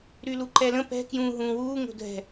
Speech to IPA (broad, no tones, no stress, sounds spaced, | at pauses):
ɾ y l u ǃ ɛ l ə̃ p ɛ̤ k j ũː ɦ ũː w uː ŋ o̤ dʱ ɛ̤